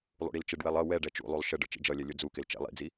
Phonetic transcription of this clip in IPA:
lˠ ṵ ɽ i l t͡ʃ ɪ ɖ w ɛ lˠ ʌ w ɛ ɖ ɛ t͡ʃ ṵ lˠ u lˠ ʃ ə ɖ ə̰ t͡ʃ ḭ d͡ʒ ʌ lʲ ɛ lʲ ʊ d͡z u k ɪ l t͡ʃ ɛ̰ lˠ ḭ d͡z i

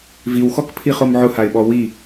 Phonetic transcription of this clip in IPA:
v i w x ɔ k pʰ i χ o m ʕ ʊ h a ɪ̯ ɓ ɔ w i

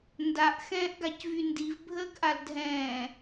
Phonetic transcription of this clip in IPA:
n d a ʔ x ɛ̃ː ʔ ɡ a c v y n d i v bʱ əː ɡ ʔ a l dʱ ɛ̃ː

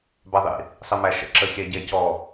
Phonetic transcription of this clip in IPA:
b a ðˤ ḭ | sˤ ɘ m æ ʃ ə̰ ǁ ə xʲ ɛ ɟ ɛ c ɔ

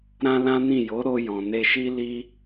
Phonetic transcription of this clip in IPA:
ɾ ã˦ l ã˦ n ĩ˦˨ j o˨˦ ɾ o˧ j ɔ̃˨ n e˧ ʃ i˦ l i˦

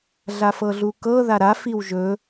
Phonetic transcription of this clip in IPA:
ɮ a f ɤ ɮ u k ɤ ð a ɾ a f i w ʒ ɵ

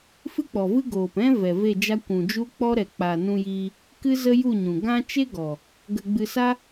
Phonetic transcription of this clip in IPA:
f ɨ˦ k͡p ɔ˨ v ɨ˦ ɡ oː˨ p ɛ̃˦ v ɛ˨ v e˦˨ d͡ʒ a˦ kʷ ũ˨ d͡ʒ u˦ k͡p ɔ˦ ɾ ɛ˨ k͡p a˨ n ũ˧ j iː˧ | k ɨ˦ z ə˦ j u˦˨ ɲ ũ˨ ɡ ã˦ t͡ʃ e˦ ɡ ɔ˨ | ɡ ə˧ ɡ͡b ɨ˧ s a˦

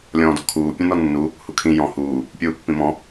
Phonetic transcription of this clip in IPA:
lʲ ɔ̃ː d ɔ̤ kʰ uː pʲ ũ n ɔ nː u | h u kʰ ĩ j ɔ̃ h uː | pʲ uː pː ĩ m ɔ̃

